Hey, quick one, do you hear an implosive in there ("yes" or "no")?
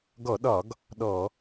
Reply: yes